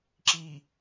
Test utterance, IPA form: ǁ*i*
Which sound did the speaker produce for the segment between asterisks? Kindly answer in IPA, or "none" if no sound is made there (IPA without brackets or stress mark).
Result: i